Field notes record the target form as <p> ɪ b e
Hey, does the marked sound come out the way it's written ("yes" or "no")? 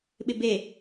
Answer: no